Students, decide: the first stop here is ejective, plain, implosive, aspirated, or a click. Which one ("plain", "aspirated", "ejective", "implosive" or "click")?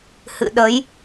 implosive